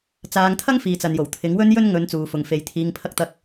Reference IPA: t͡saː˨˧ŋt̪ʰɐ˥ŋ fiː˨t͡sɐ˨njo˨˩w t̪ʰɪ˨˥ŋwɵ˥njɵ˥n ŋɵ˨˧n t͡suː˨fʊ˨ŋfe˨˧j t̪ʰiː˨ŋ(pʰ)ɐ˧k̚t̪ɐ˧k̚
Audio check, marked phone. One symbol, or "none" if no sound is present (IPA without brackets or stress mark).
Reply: pʰ